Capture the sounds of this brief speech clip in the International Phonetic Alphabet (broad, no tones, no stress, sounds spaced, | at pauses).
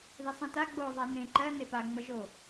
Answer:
ð ɪ sˤ ẽ t a ɡ͡b o ðˤ a n ẽ ǃ ɜ n e p a ŋ͡m ʌ ʒ o